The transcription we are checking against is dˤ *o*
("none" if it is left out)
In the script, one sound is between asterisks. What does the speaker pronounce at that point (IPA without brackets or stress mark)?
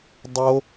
o